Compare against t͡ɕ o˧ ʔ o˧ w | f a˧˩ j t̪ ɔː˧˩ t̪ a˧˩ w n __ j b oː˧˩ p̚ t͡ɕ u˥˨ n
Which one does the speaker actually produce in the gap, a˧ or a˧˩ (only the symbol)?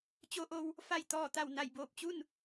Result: a˧˩